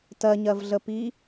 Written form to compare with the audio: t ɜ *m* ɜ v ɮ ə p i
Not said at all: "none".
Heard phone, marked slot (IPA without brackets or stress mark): ɲ